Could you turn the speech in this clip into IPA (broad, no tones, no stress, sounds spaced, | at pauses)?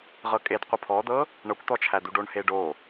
ʁ ɤ kʼ e d qʷ ʌ pʰ ɔ d̪ ɤ | ɳ ɤ kʷ t̪ ɔ t͡ʃʰ æ d̪ u ɖ o ɳ h e ɖ o